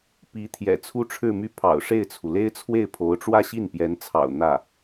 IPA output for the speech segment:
p i˧˥ t̪ʰ j ɛ̰˨˩ t͡sʰ u˥ ʈ͡ʂʰ ɻ̩˥˧ m y˥˩ pʰ ɑ̰˨˩ ʊ̯ ʂ e˥˩ ɪ̯ t͡sʰ u˩ l e˥ ɪ̯ t͡sʰ w e˥˩ ɪ̯ pʰ o˧˥ ʊ̯ ʈ͡ʂ w ä˥˧ ɕ i˥˩ n p j ɛ˧˥ n t͡sʰ ɑ̰˨˩ ʊ̯ n̪ ä˥˩

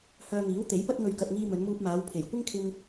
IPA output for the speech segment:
h œː˧ ŋ iː˨˥ w t̪ e˨˥ j p ɐ˥ t̚ ŋ ɵ˧ ɥ k ɐ˧ t̚ ŋ iː˧ m ɵ˨˧ n m uː˧ p̚ m aː˨˧ w pʰ e˨˩ j kʷ ɪ˥ ŋ kʰ ɪ˧ ŋ

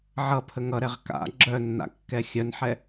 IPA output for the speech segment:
ʕ ʌ pʰ ə ŋ ʌ ɾ ɛ ʁ k a̰ ɡ͡ǁ œ nː a̰ kː ɛ xʲ œ n ħ ɛ

